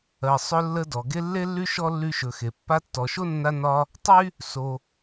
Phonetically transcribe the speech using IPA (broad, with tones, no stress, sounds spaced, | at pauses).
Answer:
ɜ˩ sˤ ɵ˦ lː ə˦ d ɔ˩ ɡ e˥ lː e˥ lː y˥ ʃ ɔ˥ lː y˦ ʃ ɵ˨ x e˩ pː a˦ tː ɔ˨ ʃ o˥ nː a˦ n ɒ˦ | tˤ y˥ | s o˨